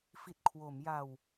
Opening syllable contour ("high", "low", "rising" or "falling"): low